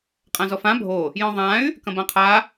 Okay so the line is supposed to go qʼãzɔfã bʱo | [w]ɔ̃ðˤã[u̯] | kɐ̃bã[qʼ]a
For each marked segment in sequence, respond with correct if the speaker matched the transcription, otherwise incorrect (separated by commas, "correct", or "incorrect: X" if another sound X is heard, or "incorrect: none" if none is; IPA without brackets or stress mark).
incorrect: j, incorrect: y̯, incorrect: qʰ